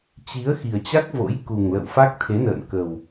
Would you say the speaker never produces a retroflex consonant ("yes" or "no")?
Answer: yes